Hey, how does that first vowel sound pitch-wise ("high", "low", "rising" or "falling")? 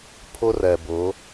high